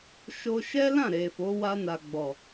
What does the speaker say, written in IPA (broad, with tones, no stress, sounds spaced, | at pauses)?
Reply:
ʃ o˧ ʃ ɛ˦ l ã˦˨ ɾ e˨ f o˨˦ w a˧ n a˨ ɡ͡b ɔ˨